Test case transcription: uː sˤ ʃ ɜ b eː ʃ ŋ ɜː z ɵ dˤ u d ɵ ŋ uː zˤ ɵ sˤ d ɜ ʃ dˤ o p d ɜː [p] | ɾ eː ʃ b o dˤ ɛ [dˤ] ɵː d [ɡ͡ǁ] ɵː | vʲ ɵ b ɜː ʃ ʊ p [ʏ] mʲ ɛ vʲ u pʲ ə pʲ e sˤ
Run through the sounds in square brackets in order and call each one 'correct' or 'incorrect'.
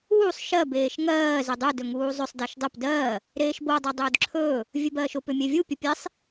incorrect: none, correct, incorrect: ǁʰ, correct

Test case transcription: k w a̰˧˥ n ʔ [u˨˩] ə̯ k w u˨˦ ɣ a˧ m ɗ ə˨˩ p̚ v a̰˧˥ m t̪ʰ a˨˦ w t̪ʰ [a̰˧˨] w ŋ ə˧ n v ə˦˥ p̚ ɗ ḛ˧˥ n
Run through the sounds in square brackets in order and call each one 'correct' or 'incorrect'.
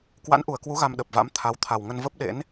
correct, incorrect: a˨˩

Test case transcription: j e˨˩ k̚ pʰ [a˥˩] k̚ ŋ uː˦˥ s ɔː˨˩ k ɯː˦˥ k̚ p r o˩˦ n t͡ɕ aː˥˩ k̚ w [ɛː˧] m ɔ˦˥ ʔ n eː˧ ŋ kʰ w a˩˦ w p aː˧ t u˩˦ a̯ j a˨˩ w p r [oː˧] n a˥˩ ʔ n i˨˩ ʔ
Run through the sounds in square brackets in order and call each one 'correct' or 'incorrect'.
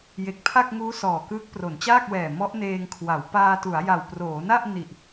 correct, incorrect: ɛː˨˩, incorrect: oː˩˦

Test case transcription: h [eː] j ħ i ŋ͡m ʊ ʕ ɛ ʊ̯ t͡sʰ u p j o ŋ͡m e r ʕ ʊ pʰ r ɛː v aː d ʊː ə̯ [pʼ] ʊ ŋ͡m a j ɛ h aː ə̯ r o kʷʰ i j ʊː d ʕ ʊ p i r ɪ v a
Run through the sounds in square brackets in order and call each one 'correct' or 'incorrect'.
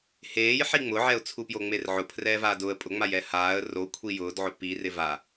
correct, correct

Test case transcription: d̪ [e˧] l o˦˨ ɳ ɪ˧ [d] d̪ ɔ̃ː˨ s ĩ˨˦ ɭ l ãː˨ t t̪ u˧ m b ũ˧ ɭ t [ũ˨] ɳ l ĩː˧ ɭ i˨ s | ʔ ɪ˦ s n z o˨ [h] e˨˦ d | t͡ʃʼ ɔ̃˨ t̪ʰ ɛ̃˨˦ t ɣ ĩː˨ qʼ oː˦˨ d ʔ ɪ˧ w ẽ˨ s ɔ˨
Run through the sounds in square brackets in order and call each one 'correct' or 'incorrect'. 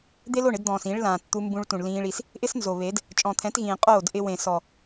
incorrect: e˦, correct, correct, incorrect: β

